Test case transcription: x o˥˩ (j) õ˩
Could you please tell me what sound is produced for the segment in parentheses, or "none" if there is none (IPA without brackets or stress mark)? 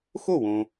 w